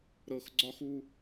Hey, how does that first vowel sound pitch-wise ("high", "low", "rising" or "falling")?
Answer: low